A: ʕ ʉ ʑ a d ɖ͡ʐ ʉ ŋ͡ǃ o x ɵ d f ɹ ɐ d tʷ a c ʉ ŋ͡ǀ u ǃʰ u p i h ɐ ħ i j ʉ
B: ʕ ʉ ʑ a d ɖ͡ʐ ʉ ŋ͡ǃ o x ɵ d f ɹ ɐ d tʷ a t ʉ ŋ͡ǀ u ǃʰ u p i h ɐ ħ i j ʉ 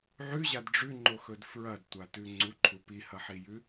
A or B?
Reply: B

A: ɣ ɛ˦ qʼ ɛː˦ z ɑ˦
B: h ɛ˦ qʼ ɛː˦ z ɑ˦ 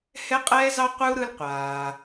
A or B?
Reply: B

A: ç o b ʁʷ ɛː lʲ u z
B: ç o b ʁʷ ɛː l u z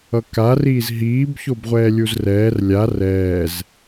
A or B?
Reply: A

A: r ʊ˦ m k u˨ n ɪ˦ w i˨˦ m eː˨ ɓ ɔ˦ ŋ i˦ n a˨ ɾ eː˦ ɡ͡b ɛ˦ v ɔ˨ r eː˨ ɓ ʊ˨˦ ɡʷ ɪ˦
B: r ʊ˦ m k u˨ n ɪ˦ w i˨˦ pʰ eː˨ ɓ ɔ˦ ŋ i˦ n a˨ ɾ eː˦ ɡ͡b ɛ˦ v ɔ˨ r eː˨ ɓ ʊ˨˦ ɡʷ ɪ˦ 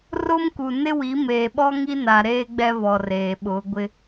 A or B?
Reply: A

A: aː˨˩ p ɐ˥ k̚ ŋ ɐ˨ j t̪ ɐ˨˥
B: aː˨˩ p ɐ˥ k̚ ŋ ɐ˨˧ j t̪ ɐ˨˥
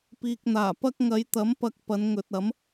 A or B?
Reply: B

